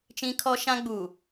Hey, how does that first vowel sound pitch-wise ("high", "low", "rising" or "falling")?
high